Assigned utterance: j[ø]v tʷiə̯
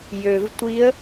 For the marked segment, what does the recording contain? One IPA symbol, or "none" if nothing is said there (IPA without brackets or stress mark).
ø